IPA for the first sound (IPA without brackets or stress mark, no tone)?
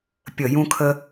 pʲ